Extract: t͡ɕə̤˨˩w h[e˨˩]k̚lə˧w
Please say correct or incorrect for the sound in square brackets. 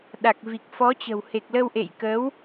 correct